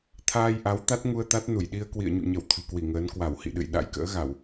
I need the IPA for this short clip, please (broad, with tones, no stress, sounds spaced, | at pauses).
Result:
t̪ʰ aː˧ j ʔ a˨˦ w t̪ a˦˥ t̚ ŋ u˧ ə̯ t̪ a˦˥ t̚ n u˧˩ j ɗ i˧ ə̯ k w ḭ˧˨ ə̯ ɲ ṵ˧˨ ɲ ə˧˩ w t̪ʰ ɨ̤˨˩ k w i˧˩ ŋ əː˨˦ n k w a˧˩ w h ḭ˧˨ ɗ ɨ̰˧˨ j ɗ a̰˧˥ j k ə̰ː˧˥ ɣ a˧˩˨ w